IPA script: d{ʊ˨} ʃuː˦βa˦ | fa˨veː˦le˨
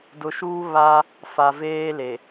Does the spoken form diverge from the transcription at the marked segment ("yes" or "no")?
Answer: no